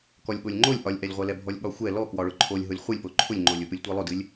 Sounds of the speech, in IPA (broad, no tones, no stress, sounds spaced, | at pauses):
k ɔ lʲ ɠ o lʲ ŋ͡ǃ o lʲ ʔ ɒ lʲ ʔ ɛ lʲ ʁʷ ɛ l ɛ bʱ ɔ lʲ ɠ ɒ xʷ ɛ l ɔ k w ɒ ɭ ʊ ǃʰ o lʲ ɦ ʊ lʲ χʷ ɨ lʲ p o ǃʰ ʊ lʲ ŋ͡ǃ o lʲ ʊ p ɨ lʲ tʷ ɛ lˠ ʊ d ɨ lʲ